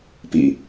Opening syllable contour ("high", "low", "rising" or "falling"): low